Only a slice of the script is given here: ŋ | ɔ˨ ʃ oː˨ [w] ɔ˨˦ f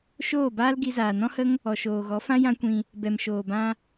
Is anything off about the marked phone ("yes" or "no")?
yes